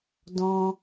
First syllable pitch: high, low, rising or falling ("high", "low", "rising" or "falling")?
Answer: high